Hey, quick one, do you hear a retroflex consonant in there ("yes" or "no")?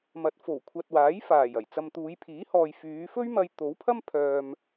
no